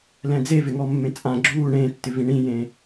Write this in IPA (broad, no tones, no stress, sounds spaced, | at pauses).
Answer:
l ɛ̃ d͡z e v ɪ ŋ ɔ mː ẽ t͡sʼ ã ɡ͡ǁ uː ɳ ẽː tː ɪ v ĩ ɳ ĩ j ẽ